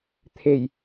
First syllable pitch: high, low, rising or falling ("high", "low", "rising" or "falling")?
low